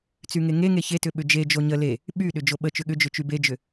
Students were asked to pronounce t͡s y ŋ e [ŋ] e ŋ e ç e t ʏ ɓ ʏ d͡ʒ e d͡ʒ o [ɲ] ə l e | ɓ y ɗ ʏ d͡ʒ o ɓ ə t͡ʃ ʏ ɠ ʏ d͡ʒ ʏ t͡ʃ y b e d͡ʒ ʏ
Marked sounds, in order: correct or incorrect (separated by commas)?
correct, correct